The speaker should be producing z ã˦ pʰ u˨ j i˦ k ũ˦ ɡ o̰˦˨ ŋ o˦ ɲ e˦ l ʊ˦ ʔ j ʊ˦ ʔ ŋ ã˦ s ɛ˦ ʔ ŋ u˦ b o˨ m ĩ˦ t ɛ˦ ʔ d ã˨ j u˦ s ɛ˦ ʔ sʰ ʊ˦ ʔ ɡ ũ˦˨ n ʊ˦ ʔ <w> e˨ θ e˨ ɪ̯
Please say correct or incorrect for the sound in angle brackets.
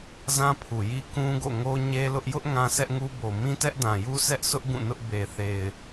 incorrect: b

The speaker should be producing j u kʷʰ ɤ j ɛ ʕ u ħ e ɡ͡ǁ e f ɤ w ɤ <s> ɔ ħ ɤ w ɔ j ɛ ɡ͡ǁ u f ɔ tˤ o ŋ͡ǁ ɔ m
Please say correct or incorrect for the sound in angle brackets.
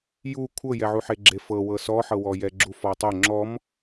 correct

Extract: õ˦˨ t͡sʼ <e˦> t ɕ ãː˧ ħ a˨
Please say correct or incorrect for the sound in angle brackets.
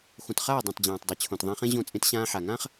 incorrect: ẽ˦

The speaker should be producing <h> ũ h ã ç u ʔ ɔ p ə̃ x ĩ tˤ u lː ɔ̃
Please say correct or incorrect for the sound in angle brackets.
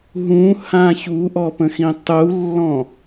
incorrect: ɦ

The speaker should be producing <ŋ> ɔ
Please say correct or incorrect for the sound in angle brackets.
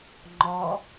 incorrect: ŋ͡ǃ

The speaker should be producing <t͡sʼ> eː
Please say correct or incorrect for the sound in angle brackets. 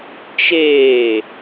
incorrect: t͡ʃ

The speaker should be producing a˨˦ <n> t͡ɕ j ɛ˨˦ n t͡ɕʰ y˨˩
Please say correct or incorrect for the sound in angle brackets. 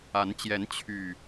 correct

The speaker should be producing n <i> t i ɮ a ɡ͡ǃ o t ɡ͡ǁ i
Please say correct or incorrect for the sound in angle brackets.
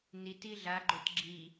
correct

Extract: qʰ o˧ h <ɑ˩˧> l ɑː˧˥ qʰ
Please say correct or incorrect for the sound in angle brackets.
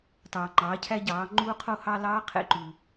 incorrect: ɑ˧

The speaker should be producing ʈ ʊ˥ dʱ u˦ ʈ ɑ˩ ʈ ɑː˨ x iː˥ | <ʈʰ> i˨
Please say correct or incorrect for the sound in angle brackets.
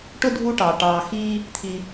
incorrect: t̪ʰ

